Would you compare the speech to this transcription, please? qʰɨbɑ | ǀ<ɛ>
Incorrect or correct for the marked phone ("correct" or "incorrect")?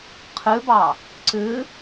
incorrect